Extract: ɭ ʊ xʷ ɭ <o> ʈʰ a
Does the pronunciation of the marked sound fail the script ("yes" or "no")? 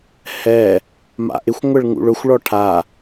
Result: yes